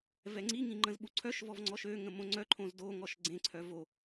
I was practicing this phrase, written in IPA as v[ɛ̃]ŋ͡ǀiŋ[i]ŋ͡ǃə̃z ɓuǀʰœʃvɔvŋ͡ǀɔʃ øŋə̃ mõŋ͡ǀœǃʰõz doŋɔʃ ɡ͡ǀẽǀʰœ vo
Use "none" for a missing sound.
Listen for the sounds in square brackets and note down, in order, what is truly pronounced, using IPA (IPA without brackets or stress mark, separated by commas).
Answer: ɛ, ĩ